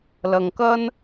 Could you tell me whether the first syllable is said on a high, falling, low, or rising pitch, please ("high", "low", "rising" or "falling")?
low